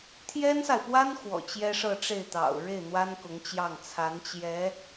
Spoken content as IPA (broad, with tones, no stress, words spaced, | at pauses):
t̪ʰjɛ˥nsa˨ɪ̯pwa˥n xwɔ̰˨˩t͡ɕjɛ˥ʂɤ˥˧ʈ͡ʂe˥˩ɪ̯ t̪ɑ̰˨˩ʊ̯ ɻe˥˩ɪ̯n̪wa˥n kʊ˧˥ŋt͡ɕjɑ˥˩ŋ t͡sʰa˧˥nt͡ɕjɛ˧˥